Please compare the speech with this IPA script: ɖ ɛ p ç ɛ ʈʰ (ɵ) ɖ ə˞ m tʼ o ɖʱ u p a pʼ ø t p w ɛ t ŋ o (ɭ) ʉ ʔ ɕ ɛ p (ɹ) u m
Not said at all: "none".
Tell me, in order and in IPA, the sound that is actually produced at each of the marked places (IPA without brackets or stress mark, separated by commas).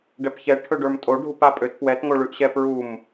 ɵ, ɭ, ɹ